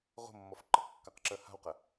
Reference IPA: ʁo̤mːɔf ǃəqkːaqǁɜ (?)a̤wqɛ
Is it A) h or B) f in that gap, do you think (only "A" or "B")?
A